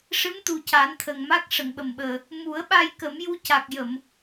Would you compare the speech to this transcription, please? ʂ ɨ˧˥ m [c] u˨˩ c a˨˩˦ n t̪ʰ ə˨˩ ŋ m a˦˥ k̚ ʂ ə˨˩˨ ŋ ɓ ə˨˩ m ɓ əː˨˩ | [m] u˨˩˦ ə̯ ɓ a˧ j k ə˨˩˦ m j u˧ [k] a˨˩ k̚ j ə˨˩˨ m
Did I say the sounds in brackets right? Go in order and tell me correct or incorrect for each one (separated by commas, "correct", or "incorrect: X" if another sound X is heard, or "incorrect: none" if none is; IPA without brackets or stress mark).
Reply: incorrect: t̪, correct, incorrect: c